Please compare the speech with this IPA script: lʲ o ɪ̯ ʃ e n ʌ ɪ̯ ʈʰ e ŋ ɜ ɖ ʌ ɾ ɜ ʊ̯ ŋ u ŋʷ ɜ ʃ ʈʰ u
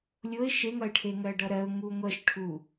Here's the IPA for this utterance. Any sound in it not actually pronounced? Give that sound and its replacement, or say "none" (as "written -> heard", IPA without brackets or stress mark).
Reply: n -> ŋ